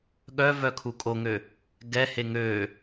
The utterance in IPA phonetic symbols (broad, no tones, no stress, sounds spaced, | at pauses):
ɠ œ v œ kʰ u kʼ o ŋ ø | ɡ ɛ h e ŋ ø